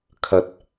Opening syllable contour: rising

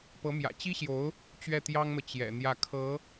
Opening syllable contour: rising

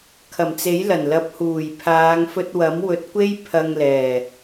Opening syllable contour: low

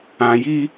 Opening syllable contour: low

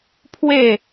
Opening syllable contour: falling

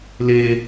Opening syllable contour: low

